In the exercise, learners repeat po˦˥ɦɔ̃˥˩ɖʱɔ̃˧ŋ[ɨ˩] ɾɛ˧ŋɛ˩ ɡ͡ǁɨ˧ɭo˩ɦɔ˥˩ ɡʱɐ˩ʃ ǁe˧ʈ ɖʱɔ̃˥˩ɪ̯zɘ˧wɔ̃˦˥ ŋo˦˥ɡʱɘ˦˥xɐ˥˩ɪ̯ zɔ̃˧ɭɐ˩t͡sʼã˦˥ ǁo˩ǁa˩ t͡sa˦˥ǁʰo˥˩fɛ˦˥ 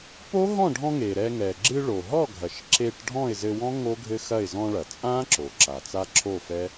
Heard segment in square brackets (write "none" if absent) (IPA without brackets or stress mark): e˩